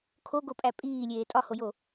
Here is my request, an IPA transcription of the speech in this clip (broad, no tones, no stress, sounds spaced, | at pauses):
kʰ o ɡ o pʼ æ pʼ iː lʲ eː tʼ ɒ h o j o